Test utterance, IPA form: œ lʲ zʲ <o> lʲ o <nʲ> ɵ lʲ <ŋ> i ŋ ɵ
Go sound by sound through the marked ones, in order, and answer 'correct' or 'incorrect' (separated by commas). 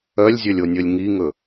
incorrect, correct, correct